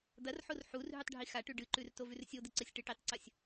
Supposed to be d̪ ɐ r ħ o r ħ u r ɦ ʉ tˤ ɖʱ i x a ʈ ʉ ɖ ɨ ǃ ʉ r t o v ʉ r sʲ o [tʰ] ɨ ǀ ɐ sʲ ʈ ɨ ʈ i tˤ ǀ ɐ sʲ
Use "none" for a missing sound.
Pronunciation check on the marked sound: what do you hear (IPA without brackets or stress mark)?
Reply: d̪